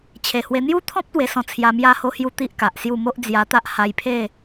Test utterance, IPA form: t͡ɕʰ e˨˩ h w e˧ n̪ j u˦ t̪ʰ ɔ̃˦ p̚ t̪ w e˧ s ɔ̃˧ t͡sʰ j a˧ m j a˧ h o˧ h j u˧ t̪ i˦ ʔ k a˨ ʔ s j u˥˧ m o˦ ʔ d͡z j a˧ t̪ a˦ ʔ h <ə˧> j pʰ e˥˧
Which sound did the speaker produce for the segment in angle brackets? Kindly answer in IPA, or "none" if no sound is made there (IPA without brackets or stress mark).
a˧